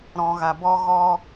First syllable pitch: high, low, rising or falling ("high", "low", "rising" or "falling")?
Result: low